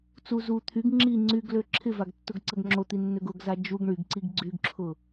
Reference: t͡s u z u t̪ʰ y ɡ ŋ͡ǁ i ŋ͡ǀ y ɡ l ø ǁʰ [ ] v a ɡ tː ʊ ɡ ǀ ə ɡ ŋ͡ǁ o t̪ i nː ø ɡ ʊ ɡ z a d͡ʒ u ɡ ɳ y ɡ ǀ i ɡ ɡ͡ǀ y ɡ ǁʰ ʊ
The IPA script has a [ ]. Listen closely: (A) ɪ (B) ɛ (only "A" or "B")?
A